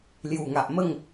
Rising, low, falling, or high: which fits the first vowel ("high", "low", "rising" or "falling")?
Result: low